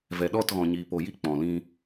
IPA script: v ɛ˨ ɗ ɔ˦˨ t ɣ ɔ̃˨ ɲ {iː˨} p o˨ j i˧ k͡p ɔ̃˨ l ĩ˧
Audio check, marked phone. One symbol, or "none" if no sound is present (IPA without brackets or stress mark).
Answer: iː˨